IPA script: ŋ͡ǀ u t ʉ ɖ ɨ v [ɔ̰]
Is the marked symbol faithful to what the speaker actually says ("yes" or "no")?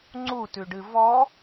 no